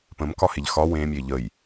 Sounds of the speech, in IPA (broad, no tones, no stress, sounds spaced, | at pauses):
p ə̃ m k ɒ h e ʎ x ɒ w ẽ mʲ e ʎ ə j